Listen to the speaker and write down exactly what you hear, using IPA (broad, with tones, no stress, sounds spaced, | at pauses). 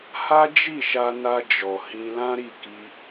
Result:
h a˦ d͡ʒ i˦˨ ʃ a˧ n a˧ d͡ʒ ɔ˨ h ĩ˧ l ã˦ ɾ i˦˨ k i˧